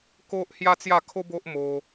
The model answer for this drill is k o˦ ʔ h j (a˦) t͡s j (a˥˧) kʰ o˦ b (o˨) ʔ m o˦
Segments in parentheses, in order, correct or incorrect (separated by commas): correct, correct, incorrect